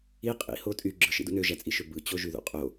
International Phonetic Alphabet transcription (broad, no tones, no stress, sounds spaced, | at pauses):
i qʼ ḭ h o tʼ y ɡ͡ǁ ɯ ʃ ḭ d ṵ n ø ʒ æ t͡sʼ i ʃ ø b ɯ t͡ɕ o ʒ y ð ṵ qʼ o